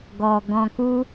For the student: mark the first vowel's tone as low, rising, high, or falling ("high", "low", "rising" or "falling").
low